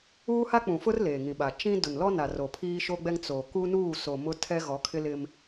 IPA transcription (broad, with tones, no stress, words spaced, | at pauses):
uː˦ha˦k͡pũ˨fʊ˦r leː˨ŋĩ˨ɓa˨ t͡ʃĩ˦ dʊ˨nlɔ˦na˨ ro˨ pʰiː˦ʃo˦ɡ͡bɛ˦ŋ t͡so˨ ku˦nuː˦˨ soː˨mʊ˦tʰɛ˦ ɣɔ˨˦kʰɪ˦lɪ˦m